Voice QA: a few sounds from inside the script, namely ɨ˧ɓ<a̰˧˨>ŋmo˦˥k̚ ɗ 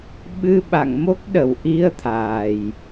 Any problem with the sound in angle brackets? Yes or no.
no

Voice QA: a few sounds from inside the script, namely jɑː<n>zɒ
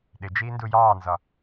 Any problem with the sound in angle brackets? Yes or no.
no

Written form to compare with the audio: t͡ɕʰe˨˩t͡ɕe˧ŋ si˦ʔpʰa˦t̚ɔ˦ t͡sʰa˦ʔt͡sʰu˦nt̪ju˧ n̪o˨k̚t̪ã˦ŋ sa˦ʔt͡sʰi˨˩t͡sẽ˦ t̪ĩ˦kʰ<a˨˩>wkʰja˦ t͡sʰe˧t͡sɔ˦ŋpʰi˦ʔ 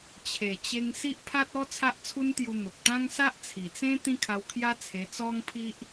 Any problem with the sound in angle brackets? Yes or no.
yes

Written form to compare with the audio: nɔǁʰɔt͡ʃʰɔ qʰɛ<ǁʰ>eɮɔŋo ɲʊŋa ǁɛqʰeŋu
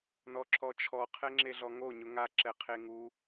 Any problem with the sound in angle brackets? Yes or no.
yes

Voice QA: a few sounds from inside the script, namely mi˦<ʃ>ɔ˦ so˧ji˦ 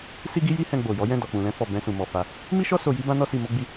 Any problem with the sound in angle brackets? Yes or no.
no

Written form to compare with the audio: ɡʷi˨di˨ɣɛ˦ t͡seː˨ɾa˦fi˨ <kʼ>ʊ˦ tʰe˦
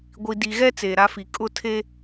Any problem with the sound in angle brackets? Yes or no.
no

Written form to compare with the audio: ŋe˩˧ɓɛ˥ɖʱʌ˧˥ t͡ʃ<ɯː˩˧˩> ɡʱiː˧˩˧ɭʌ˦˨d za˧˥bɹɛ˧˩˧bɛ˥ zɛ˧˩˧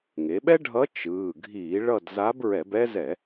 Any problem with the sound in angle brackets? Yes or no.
no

